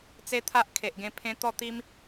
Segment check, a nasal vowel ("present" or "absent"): present